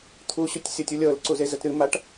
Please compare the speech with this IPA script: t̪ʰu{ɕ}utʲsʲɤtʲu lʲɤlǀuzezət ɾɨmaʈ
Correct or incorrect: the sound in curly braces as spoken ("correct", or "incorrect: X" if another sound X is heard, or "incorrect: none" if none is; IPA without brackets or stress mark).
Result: correct